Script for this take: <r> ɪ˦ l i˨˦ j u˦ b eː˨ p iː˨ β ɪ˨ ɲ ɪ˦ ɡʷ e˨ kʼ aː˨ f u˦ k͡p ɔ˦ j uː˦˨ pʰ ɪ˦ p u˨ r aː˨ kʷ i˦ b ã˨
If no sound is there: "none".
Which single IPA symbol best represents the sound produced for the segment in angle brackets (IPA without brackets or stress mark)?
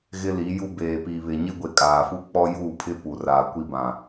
ɣ